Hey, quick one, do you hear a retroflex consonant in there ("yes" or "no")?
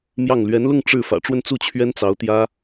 yes